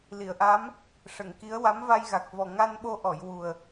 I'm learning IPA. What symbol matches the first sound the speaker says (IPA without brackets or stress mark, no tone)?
l